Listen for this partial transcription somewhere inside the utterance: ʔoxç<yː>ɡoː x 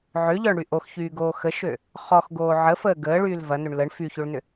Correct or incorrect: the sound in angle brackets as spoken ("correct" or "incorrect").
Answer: correct